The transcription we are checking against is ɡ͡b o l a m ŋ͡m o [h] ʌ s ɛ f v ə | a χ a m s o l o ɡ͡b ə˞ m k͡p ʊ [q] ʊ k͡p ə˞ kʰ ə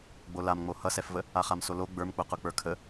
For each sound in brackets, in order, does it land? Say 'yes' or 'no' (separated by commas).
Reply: yes, yes